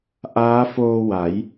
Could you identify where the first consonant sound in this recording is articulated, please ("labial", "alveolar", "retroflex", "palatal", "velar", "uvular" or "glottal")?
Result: glottal